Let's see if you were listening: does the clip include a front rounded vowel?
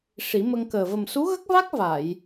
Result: no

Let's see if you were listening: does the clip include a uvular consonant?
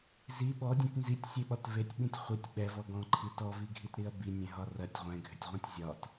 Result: yes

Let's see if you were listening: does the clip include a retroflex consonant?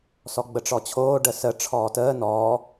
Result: yes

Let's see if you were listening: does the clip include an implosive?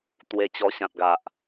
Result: no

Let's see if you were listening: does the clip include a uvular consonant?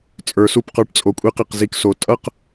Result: yes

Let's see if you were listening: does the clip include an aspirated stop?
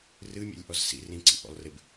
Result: no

